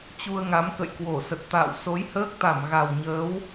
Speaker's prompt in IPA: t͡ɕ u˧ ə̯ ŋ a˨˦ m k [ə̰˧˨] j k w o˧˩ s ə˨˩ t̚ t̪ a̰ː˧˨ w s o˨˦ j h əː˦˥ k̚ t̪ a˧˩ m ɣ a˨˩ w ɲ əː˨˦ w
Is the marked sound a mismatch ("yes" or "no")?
no